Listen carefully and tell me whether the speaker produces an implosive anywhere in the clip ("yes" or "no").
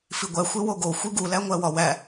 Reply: no